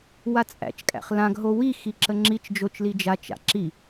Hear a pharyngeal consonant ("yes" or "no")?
no